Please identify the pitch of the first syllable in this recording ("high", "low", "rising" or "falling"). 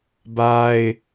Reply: high